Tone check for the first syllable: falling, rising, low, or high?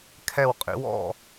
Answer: falling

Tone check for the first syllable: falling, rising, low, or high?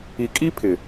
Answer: low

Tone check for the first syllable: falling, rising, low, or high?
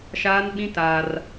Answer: high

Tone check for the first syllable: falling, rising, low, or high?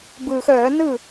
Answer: low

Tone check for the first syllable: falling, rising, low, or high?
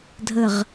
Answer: falling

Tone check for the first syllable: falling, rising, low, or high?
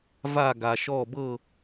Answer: falling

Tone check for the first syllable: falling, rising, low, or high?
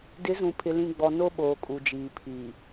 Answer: rising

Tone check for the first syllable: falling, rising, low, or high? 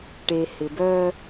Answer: low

